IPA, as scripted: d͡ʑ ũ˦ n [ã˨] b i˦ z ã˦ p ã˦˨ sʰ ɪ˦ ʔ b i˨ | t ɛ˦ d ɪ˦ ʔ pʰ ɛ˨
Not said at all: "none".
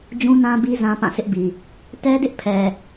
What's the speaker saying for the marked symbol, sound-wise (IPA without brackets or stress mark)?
ã˦